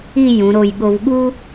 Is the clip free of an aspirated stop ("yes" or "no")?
yes